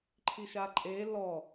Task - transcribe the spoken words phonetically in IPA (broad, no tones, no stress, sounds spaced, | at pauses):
ǃʰ i ʃ a ǃʼ e l ɔ